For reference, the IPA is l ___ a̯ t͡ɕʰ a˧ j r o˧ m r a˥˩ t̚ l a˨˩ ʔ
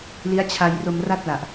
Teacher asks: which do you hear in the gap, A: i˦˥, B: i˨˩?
A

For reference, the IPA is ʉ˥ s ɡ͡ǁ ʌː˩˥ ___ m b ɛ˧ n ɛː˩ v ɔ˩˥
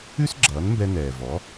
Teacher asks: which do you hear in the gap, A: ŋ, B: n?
B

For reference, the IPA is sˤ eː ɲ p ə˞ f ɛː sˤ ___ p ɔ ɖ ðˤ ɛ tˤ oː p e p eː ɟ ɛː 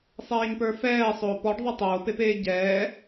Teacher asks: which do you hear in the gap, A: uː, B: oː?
B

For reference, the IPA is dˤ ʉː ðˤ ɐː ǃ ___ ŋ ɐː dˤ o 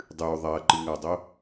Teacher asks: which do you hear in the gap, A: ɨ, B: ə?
A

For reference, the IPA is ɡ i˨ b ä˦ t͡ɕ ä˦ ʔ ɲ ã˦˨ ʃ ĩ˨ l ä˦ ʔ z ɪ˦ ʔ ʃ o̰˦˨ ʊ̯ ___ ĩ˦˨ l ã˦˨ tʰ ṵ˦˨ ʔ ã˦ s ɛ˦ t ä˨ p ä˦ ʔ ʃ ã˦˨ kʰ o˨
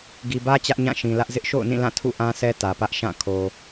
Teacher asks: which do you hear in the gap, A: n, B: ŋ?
A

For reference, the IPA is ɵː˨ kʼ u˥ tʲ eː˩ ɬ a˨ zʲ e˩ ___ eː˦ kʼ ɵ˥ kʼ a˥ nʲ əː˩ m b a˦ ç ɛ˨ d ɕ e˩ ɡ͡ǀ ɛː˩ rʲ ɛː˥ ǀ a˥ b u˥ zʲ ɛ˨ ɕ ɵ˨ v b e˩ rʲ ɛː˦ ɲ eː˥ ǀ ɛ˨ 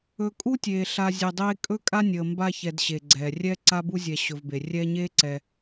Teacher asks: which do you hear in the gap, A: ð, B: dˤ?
B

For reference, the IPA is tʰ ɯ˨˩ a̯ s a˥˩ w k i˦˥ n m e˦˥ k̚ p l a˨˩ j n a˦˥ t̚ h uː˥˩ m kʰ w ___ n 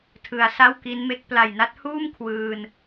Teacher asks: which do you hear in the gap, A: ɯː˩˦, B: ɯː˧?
B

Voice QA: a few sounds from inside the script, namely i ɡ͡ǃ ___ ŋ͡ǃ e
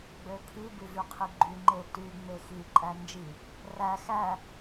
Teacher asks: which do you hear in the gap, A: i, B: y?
B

